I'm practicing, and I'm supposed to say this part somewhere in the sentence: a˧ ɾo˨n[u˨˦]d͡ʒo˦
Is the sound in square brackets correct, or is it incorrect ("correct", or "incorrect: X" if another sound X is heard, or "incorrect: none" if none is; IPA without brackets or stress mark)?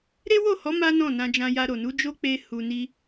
correct